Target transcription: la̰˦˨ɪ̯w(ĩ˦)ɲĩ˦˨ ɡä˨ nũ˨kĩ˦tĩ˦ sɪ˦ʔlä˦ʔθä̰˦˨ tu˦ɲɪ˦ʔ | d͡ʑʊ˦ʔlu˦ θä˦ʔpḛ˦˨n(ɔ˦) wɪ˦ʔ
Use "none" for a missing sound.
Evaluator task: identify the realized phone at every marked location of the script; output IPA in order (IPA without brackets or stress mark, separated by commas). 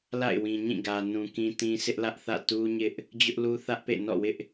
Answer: ĩ˨, ɔ̰˦˨